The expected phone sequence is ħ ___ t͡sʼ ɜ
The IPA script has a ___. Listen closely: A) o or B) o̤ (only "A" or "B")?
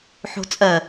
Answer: B